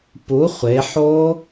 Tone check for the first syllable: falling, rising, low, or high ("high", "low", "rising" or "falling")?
rising